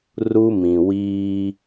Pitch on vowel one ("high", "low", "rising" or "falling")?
high